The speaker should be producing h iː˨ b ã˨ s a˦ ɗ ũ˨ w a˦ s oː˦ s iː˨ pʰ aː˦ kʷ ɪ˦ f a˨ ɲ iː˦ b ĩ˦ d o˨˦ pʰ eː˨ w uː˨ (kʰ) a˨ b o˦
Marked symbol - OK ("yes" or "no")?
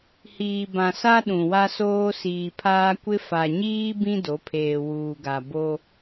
no